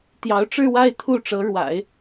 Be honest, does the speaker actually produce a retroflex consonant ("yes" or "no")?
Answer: yes